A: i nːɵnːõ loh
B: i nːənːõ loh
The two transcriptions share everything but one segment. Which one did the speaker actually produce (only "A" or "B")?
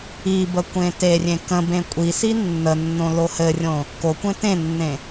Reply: B